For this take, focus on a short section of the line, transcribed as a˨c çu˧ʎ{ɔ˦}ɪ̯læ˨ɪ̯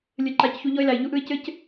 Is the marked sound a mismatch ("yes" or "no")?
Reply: no